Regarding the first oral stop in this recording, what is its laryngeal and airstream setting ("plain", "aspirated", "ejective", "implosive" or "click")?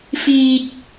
plain